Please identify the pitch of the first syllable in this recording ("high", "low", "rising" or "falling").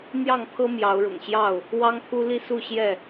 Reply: falling